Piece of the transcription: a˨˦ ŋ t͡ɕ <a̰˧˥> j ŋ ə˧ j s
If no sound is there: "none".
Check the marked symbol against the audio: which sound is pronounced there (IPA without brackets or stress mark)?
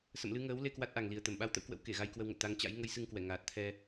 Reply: a̰˧˥